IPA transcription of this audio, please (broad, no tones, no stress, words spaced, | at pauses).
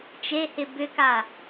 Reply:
t͡ʃehɪ bʏka